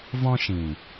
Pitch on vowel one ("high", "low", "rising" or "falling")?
high